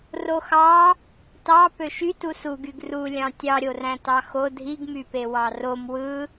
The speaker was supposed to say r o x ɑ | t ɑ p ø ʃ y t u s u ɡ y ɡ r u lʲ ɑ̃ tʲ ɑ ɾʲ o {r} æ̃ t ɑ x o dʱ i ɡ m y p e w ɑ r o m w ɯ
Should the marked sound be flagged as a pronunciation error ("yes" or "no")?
no